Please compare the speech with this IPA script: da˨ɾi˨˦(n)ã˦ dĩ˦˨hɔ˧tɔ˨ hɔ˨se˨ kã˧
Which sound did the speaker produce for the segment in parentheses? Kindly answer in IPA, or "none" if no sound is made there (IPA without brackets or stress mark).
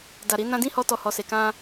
n